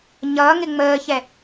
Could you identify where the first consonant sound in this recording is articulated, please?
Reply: palatal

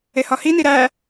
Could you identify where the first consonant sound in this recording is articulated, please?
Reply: glottal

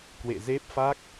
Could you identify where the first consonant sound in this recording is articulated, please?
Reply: velar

